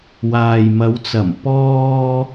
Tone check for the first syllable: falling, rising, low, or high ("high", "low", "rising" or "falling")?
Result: low